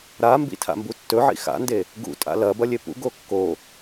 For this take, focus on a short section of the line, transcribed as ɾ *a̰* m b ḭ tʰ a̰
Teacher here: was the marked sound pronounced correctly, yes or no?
no